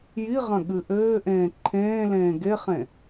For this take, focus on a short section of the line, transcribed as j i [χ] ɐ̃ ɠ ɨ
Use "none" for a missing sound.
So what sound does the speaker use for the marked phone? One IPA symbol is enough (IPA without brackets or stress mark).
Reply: ʁ